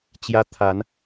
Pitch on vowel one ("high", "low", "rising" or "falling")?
high